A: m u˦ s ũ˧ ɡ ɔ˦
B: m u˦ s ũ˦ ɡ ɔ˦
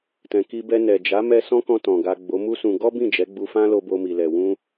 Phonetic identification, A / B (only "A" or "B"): A